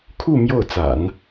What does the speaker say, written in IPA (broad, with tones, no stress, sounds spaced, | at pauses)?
kʰ u˥˧ m j o˥˩ ʊ̯ t͡s a̰˨˩˦ n